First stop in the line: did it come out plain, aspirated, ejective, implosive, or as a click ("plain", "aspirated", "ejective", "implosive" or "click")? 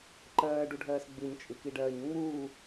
click